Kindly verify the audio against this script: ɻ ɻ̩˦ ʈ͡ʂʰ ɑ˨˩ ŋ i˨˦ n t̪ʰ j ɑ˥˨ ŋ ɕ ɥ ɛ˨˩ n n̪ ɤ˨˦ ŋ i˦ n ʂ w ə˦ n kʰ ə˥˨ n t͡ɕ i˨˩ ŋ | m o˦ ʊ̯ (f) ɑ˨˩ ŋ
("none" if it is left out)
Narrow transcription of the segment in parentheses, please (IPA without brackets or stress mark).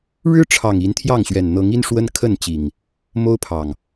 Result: pʰ